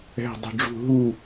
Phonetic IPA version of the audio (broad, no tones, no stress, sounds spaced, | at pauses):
ɛ̤ dˤ ṳ ɖ͡ʐ ṳ ɦ u